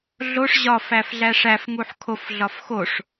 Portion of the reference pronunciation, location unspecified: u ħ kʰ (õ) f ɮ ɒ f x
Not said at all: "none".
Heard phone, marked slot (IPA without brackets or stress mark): o